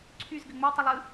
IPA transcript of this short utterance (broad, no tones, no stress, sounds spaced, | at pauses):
ǀʰ y z ɡ ɘ ŋ͡m ɘ tˤ ɐ lˠ ɯ